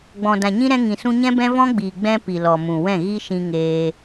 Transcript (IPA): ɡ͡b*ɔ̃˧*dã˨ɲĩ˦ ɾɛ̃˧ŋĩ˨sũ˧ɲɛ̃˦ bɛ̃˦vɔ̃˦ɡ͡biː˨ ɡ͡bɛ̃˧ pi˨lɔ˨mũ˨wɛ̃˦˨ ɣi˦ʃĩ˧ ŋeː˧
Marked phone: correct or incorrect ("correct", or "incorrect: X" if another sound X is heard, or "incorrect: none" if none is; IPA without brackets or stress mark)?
incorrect: ɔ̃˨